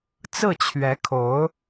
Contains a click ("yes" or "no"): no